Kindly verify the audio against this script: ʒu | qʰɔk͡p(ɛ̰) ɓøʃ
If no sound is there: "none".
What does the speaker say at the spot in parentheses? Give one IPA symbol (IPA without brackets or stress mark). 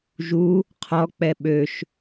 ɛ